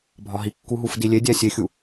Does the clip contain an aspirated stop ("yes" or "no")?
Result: no